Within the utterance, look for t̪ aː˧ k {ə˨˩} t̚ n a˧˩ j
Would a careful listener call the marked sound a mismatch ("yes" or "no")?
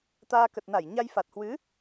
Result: no